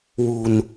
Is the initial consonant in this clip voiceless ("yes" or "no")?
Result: no